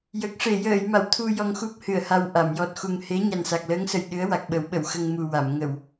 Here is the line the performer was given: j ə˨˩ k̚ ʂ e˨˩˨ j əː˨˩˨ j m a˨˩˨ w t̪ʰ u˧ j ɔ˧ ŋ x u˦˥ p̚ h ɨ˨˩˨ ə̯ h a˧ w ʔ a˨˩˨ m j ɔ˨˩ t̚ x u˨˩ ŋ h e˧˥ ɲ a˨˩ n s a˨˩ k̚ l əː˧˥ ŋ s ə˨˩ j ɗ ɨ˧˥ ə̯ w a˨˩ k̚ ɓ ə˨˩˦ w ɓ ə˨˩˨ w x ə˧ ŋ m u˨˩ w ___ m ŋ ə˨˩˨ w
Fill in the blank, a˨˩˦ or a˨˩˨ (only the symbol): a˨˩˨